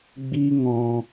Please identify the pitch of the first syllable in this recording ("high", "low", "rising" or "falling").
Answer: high